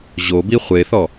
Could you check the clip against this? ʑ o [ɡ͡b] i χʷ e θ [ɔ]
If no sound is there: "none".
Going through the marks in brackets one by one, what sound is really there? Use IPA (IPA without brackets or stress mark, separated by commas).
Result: b, ɔ